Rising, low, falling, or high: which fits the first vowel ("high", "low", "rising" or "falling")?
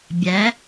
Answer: rising